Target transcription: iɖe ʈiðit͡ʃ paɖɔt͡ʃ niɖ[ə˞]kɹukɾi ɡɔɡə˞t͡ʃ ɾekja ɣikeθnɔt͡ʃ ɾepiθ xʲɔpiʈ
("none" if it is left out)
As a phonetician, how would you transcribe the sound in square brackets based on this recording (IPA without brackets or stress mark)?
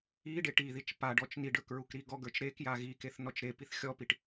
ə˞